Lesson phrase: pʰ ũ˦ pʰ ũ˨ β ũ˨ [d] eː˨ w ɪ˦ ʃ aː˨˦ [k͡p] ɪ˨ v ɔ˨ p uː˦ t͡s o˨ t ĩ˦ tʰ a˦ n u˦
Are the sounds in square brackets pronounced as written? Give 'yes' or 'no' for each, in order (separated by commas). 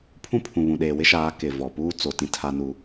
no, no